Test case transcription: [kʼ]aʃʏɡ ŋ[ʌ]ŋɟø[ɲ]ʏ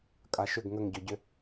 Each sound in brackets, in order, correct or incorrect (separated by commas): correct, incorrect, incorrect